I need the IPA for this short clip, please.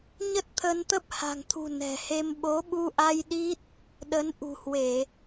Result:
ɲ ə˦˥ t̚ t̪ʰ ə˧ n t̪ ə˦˥ p̚ h a̤˨˩ ŋ t̪ʰ ṳ˨˩ n ɛ̤˨˩ h e˧ m ɓ o˨˦ ɓ u˧ ʔ a˧ j ɗ i˦˥ t̚ | ɗ ə˨˦ n ʔ ṳ˨˩ h w e˧˩˨

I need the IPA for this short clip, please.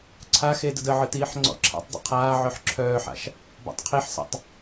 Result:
ǀʰ a x e d ə d ə ʕ ɯ t iː ħ ŋ͡ǀ ɔ̰ ǁʰ a̰ tˤ dˤ ə̰ qʰ aː ʕ œ ħ ǁʰ œː ħ a̰ ʃ | b a̰ tˤ qʰ i ħ s a̰ tˤ

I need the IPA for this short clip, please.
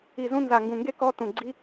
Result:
i˦˨ z ũ˥ n z a˦˨ ŋ ɡ ũ˦˨ ŋ ɡ e˥ k ɔ˥ t ũ˦˨ ɡ͡ǀ i˥

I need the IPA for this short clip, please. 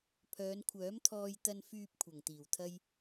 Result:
pʰ œː˨˧ n kʷʰ œː˨˥ m t̪ʰ ɔː˧ j t̪ ɐ˧ n f yː˧ p̚ kʷʰ ɐ˨˩ ŋ t̪ iː˨˩ w t̪ʰ ɐ˥ j

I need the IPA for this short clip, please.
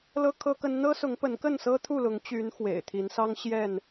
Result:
l ɤ˦ kʰ ɤ˦ k ə˦ n n̪ ɤ˦ s ʊ˨˦ ŋ p ə˨˦ n k ə˥˨ n s ɤ˦ t̪ʰ u˥˨ l ʊ˨˦ ŋ t͡ɕ y˨˦ n x w ḛ˨˩ ɪ̯ t̪ʰ i˨˦ n s ɑ˦ ŋ ɕ j ɛ˥˨ n

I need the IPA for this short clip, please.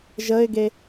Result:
ʒ ə ɪ̯ ɡ e

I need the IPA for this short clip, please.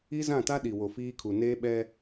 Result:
i˦ z ã˦˨ t a˦ ɗ i˨ w o˨ f iː˦ kʰ u˨ n eː˦ ɓ ɛ˦

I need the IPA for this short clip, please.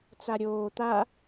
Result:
t͡s a ɾʲ oː t̪ a

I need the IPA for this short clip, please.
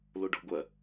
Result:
l o ɖ ɔ̤ ɡʷ ɐ

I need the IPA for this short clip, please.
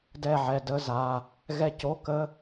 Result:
d ɛ˦˨ ʕ ɛ˩˧˩ d ə˧˥˧ z a˩˧˩ | ɣ ɛ˦˨ c o˧˥˧ k ə˧˥˧

